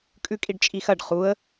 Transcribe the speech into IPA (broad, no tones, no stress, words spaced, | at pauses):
kʼʉkʼiɖt͡ʃʼixɐɖ χuə̯